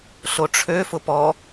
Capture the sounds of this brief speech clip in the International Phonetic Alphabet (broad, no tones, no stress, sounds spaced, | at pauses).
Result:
ɬ o ʈ͡ʂʰ ø f ʊ p ɔ